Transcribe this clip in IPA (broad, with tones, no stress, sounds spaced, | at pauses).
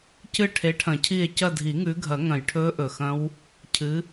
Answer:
c ɨ˦˨ ʈʰ e˨˦ ʈʰ ɐ̃˨˩˦ cʰ i˦˨ e̯ c ɐ˦˨ dʱ i˨˩˦ ŋ ʉ˨˦ ɡʱ ɐ˨˩˦ ŋ ɐ̃˨˩ j ʈʰ ɵː˦˥ ʔ ɵ˨˩ x ɐ̃˦˥ w | cʰ ɨ˨˦